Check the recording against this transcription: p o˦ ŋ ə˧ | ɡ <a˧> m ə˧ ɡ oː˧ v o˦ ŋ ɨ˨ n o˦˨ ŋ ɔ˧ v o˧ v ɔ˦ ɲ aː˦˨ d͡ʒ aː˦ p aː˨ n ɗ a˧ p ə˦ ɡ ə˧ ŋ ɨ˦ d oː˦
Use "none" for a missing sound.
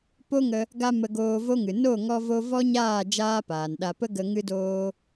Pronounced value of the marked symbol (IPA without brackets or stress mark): a˧